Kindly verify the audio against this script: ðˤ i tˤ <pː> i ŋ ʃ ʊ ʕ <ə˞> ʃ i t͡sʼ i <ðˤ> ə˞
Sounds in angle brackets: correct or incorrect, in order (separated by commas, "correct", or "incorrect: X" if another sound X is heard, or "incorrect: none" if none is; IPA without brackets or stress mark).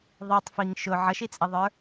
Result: incorrect: f, incorrect: ʌ, correct